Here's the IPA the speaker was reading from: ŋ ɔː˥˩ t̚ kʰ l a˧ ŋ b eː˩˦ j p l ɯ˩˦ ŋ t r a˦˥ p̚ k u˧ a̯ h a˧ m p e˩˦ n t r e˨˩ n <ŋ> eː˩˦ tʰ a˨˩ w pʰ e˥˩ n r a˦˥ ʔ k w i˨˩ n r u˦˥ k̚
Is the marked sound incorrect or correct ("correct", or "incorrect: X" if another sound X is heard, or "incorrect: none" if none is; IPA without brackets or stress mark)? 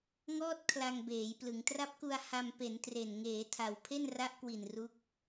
correct